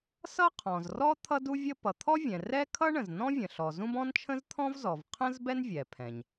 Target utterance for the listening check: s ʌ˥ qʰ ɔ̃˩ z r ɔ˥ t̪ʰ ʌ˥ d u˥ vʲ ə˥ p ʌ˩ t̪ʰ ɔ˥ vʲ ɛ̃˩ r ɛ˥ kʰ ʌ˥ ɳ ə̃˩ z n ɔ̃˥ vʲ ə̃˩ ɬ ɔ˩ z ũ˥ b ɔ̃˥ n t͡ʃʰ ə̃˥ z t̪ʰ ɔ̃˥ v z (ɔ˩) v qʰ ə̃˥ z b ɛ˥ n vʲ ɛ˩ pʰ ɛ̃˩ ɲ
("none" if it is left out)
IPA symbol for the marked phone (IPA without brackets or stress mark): ɔ˩